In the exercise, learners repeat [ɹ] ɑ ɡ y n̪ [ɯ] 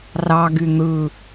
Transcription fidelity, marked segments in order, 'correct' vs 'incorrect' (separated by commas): incorrect, correct